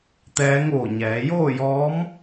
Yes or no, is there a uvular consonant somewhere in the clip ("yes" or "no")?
no